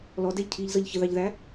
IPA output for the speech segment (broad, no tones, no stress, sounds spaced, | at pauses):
l ɔ d ɛ ʎ cʰ iː ʎ z ʌ ʎ ç ə ð ɑ ʎ ð æ